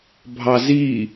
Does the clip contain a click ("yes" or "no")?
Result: no